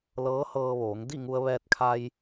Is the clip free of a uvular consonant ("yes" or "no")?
yes